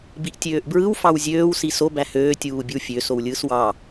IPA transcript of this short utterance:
b i ʔ tʲ øː ʔ b ɹ ɯ w f ɑ w zʲ øː w s i s o b æ h øː tʲ uː bʲ ɯ w fʲ ø s o w lʲ ɯː s w ɑ

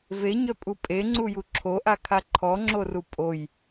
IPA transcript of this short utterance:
v e ɲ œ pʼ u pʼ e ŋ͡ǀ u j u ǁʰ o ʔ a kʰ a ǃʰ ɔ ŋ͡ǁ o r u pʼ o j

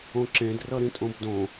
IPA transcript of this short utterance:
õ ǁ ẽ d r ʌ ɾ ĩ tʼ õ b d õ

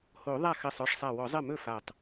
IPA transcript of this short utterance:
h o˨˩˦ ðˤ a˥˩ x ɜ˧˩ sˤ ɔ˥˩ ʂ sˤ a˧˩ w ɔ˨˩˦ zˤ ɜ˥˩ m ɵ˥˩ f a˧˩ tˤ

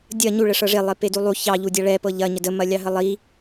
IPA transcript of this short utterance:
dʲ ɐ ɲ u ɭ ə ʂ ɤ ʐ e lˠ e p e d u lˠ u ç ɑ ʎ u dʲ ɑ ɭ ɛ p ɤ ʎ ɐ ɲ ə d ə m ɐ lʲ ɑ ɦ ə lˠ i

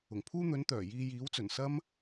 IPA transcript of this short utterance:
ʊ˨˩ ŋ pʰ uː˥ n̪ ɵ˨˥ n t̪ œː˨˩ j iː˧ j iː˨˥ w t͡s ɵ˨˩ n s ɐ˥ m

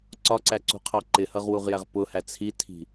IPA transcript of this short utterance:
ǀ ɒ ǀ æ ǀ ṳ qʰ ɑ ǃ ɪ h ʌ ʁ w u ʁ j æ ʁ p ʊ h æ t͡sʰ i tʰ i̤

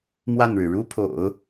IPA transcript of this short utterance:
m w a˥˩ n ɻ ɻ̩˩ ɻ u˥ pʰ o̰˨˩˦ ʊ̯

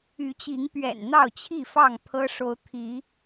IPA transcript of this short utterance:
y˨˦ t͡ɕ i˨˦ ŋ p ɥ ɛ̰˨˩ n n̪ ɑ˥˨ ʊ̯ t͡ɕʰ i˥˨ f ɑ˥˨ ŋ pʰ ɤ˦ ʂ o˨˦ ʊ̯ t̪ʰ i˨˦

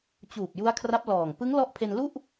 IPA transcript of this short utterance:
t͡ɕ uː˨˩ p̚ j u˦˥ a̯ kʰ r a˦˥ p̚ l ɔː˨˩ ŋ p ɯ˦˥ ŋ l ɔ˦˥ ʔ pʰ e˧ n l u˥˩ ʔ

